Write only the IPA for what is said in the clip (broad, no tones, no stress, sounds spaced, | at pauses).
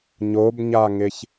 ɲ o b ɲ a ŋ ɪ ç